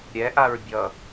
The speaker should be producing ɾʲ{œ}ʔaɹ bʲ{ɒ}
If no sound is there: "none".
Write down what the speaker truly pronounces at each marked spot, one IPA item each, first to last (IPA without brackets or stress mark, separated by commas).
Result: ɛ, ʌ